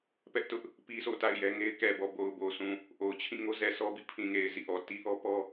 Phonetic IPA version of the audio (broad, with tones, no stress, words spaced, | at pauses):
pɛ˦ʔtʊ˦ʔ | pi˦sʰo̰˦˨ta̰˦˨ɪ̯ jɛ˦ŋe˦ɪ̯ kɛ˨bɔ˨ bo˨ʊ̯bo˨sʰũ˨ | ʔo˨ʊ̯t͡ɕʰĩ˦˨ ŋo˦zɛ˨sɔ˦bḭ˦˨ pʰĩ˨ŋe˨ɪ̯ zḭ˦˨ʔɔ˨ ti˦ʔɔ˦pɔ˦